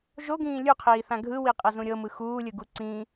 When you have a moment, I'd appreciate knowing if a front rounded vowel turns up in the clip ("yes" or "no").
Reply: no